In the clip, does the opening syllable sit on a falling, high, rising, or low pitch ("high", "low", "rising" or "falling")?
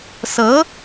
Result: rising